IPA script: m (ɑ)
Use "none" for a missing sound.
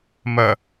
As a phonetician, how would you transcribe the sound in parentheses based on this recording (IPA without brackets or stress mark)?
ɐ